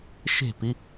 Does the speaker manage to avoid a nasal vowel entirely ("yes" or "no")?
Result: yes